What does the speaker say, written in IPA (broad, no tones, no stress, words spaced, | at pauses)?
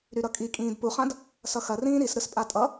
ɾyɾʌkʼi kʼĩːdpuχãd | sʌxɐ rĩːɾisɾɯspʼa tʼʌ